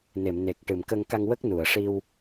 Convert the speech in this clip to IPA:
n e˨˩˨ m n e˨˩ k̚ ʈ ɨ˨˩˨ m k ə˧ ŋ k a˧ ŋ w ə˦˥ k̚ n u˨˩˨ ə̯ ʂ i˧ w

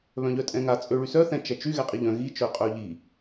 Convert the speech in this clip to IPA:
β œ̃ ʎ œ tʼ ɛ̃ ŋ a t͡sʼ ø ɭ y s œ θ ɛ̃ t͡ʃ ɛ t͡ʃ y ɣ ɛ qʼ i ʎ œ̃ ɣ i t͡ʃ œ qʼ œ ʎ i

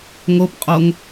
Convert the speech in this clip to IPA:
ŋ o p qʼ o ŋ

